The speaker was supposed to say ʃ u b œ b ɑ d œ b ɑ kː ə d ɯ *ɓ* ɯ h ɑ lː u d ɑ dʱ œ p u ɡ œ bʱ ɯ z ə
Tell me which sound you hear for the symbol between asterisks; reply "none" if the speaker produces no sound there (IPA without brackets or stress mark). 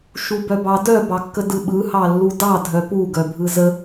ɓ